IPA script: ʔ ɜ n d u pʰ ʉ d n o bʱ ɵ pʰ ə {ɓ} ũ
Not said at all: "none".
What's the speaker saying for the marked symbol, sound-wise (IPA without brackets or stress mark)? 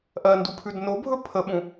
ɓ